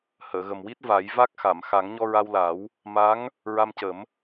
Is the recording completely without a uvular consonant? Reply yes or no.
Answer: yes